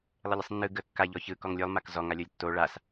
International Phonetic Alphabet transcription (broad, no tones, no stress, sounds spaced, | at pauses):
lˠ ə lʲ ɯ sˤ nː ɯ ɡ ə kː a ʎ ɔ ç ɯ k ɔ ŋ lʲ o lˠ m a k z ɔ ŋ a lʲ o lʲ tː o ɭ a s